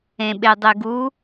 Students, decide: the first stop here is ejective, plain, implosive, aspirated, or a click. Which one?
implosive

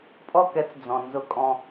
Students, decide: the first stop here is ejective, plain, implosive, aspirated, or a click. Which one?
ejective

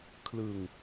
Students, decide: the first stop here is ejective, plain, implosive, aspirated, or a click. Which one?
aspirated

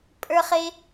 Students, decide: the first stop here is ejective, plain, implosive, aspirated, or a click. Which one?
ejective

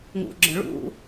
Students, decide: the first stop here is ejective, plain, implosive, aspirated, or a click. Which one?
click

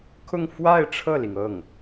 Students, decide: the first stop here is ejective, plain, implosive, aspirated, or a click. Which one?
aspirated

